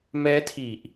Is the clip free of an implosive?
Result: yes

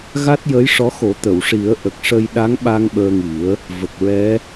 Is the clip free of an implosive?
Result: no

